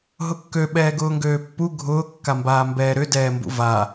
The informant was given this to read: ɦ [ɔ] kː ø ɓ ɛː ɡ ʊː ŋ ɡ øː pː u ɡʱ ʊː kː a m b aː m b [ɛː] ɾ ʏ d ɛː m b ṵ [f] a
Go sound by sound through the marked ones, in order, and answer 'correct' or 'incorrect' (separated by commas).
incorrect, correct, incorrect